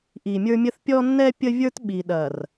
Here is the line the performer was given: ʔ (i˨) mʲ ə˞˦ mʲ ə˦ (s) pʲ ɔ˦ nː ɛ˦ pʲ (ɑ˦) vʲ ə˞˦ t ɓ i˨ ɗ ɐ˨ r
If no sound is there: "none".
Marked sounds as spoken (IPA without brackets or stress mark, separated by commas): i˨, θ, ə˦